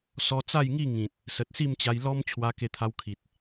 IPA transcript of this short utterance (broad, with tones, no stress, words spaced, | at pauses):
sɔ˧t͡sa˥˧jŋi˥˧ ŋĩ˨t̚ | sə˨t̚si˥˧mt͡ɕa˧j lɔ˦m t͡ɕʰwa˧ ke˧t̪ʰa˧wkʰi˨t̚